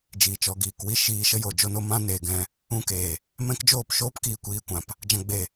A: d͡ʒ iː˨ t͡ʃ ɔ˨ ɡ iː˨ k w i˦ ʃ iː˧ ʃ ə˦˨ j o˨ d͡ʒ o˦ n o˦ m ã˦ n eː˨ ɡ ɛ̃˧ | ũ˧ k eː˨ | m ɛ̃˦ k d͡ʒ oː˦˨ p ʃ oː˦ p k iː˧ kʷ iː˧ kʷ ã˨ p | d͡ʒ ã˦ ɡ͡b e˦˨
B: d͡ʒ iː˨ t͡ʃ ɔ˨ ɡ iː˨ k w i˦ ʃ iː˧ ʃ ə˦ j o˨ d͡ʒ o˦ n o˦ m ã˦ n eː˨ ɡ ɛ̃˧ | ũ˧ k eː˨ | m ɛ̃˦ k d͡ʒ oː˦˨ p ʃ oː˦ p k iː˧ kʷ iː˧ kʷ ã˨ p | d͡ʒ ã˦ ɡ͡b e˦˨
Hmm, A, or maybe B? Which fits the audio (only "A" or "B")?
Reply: B